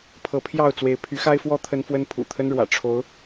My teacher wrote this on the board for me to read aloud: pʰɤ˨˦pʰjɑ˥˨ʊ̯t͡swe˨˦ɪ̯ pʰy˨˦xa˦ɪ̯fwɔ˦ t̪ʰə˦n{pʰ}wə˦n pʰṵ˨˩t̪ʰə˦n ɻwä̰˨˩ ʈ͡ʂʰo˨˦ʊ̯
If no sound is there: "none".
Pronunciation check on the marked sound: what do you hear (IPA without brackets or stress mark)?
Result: f